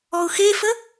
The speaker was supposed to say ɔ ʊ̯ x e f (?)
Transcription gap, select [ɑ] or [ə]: ə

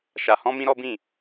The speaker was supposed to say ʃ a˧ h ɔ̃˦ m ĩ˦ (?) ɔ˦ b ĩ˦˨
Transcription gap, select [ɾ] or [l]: ɾ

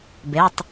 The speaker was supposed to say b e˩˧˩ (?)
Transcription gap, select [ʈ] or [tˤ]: tˤ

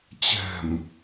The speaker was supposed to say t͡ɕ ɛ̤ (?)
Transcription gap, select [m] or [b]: m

